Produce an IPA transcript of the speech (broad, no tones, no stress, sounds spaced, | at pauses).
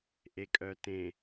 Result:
ʔ e kʼ œ t ẽ